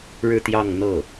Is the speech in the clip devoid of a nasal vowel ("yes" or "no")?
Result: yes